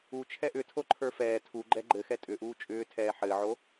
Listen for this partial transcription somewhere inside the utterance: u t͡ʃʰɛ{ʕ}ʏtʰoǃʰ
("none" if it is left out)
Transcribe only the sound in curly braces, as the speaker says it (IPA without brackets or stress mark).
ʔ